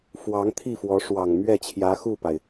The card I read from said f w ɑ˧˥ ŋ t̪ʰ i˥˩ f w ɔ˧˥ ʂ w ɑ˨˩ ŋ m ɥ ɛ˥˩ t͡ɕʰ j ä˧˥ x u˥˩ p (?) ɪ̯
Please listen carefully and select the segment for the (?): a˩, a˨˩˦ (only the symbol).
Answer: a˩